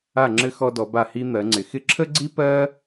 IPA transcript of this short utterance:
a˧˩ ŋ͡ǁ ɘ˧ x ɔ˧ d ɔ˩˧ b a˧˩ h i˧ n̪ ɜ˩˧ ŋ͡ǀ ɪ˩˧ x ɪ˧ ǁʰ ə˥ ɡ͡ǀ i˥ p ɜ˥

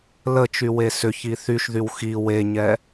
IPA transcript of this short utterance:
l ə t͡ʃ y w e s ʏ ç i θ y ʃ ð y w x i w e ɲ ɛ

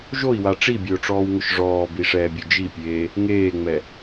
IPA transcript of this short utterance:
ʒ o i̯ w a ʈ͡ʂ i bʲ ʊː ʈ͡ʂ ɔː w ŋ ʊ ʃ ʐ ɔː b i ʂ ɛː bʲ ʊ d͡ʒ i pʲ eː | ŋ eː ŋ͡m ɛ

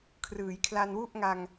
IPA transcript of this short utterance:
kʰ r ɯː˩˦ j kʰ l a˧ n w u˥˩ ʔ ŋ a˧ ŋ

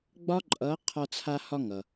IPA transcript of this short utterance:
ɡ͡b ɒ˥ ǃʼ ʌ˧˥ qʰ ɒ˧ t͡sʰ a˧ h ɒ˧ ŋ ʌ˩

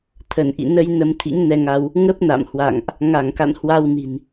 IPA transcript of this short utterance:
t̪ʰ ə˧˩ n ʔ ḭ˧˨ n ə˧ j n ə˧ m t̪ʰ ḭ˧˥ ŋ n ɛ˧ ŋ a˧ w | ŋ ə˦˥ p̚ n a̰˧˨ m h w a̰˧˨ ŋ ʔ | ŋ a˧˩ ŋ k a̰˧˨ n h w a˧ w n i̤˨˩ n

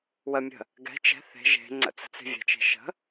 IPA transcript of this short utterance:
w ə mʲ ə̤ | ɡ ɛ̤ t͡ʃ ɛ̤ θ e̤ ʒ e̤ ŋ͡ǀ ə̰ t͡s ə̤ t͡s e̤ vʲ ɛ̤ t͡ʃ e̤ ʃ ə̤

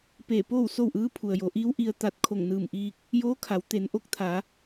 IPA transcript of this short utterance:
p eː˧˩ p oː˥˨ w s o˥˨ w ʔ ɯː˧˥ pʰ u˩ ə̯ j o˩˧ ʔ iː˧˥ w ʔ i˧ ə̯ t̪ a˧ t̚ kʰ o˧˩ ŋ n ɯː˧˩ m ʔ iː˧ k̚ | j oː˧˥ kʰ a˩˧ w t̪ e˩˧ n ʔ o˧˥ k̚ t̪ʰ a˩˧

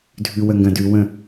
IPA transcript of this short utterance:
dʱ ʉ w ə ŋ ɡ ɐ̃ d ʉ w ə̃

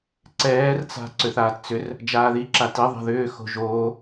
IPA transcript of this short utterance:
ǀ ɛː r t͡s a̤ ǀ ʏ θ aː t t͡s ʏ r | d͡ʒ aː ð i ǁ a t i ðˤ a̤ ð ʏː x o̤ ʒ oː

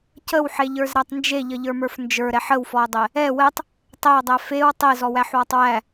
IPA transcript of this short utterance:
c ə w ħ e ʎ ə˞ z ɾ æ tˤ n d͡ʒ e ʎ ə ʎ ə˞ m ə˞ f n d͡ʒ ə˞ ɾ ɛ ħ ə w f ɔ ɐ̯ dˤ ɛ | ɛ w ɛ tˤ | tˤ ɛ ɐ̯ dˤ æ f e w tˤ e z ɔ w æ ħ w ɔ tˤ w æ

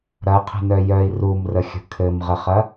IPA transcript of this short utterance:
ɾ ɐ qʰ ə̤ n œ j œ i̯ r u m r ə xʲ ə̤ kʰ ɘ m ʁ ə χ ɐ

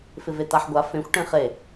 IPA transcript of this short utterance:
f ɪ v e t a ħ ɡʷ a f ẽ xʷ ʈ ẽ χ e

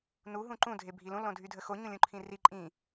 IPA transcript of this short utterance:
n u ɦ ũ ǃ ũ dʱ e bʱ i l ũ l õ dʱ y dʱ ə x o ɲ ũ lʲ ũ ǃʰ ĩ r i ǃʼ ĩ

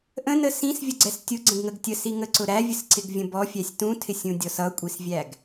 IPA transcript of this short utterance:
ʔ ə̃ n ə s ĩ s vʲ ə ɡ͡ǀ ɛ s tʲ ʊ ɡ͡ǀ ə̃ ɡ ŋ ə ɡ tʲ ə s i ŋ ə ǀ ʊ ɾ æ vʲ ə s ǀ ɪ ɡ vʲ ə̃ b ɔ fʲ æ sʲ t ũ tʰ ɪ sʲ ũ dʲ ɔ s ʌ kʷʼ i s vʲ æ ɡ

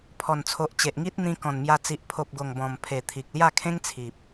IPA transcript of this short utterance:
pʰ ɔ˨˩ n t͡sʰ o˨ ʔ t͡ɕ e˨ ʔ ŋ i˦ t̚ n̪ ĩ˧ k ɔ̃˨˩ n m j a˧ t͡s i˨ ʔ pʰ o˨ p̚ ɡ o˨˩ ŋ b ɔ̃˨˩ m pʰ e˨˩ t̪ʰ i˨ k̚ l j a˥˧ kʰ ẽ˦ ŋ t͡sʰ i˨ p̚

